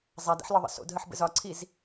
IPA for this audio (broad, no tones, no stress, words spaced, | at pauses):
zˤadɛ̰ħlɒðˤə̰ so̰dɦəħ bə̰zɒǀʰiz